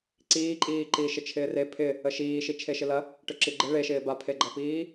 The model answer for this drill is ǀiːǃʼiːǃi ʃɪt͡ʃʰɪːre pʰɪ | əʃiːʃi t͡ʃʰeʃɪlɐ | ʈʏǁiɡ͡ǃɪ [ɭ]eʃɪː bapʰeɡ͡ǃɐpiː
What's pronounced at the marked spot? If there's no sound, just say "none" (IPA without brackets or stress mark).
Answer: ɭ